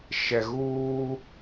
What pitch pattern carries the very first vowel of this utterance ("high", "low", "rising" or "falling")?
low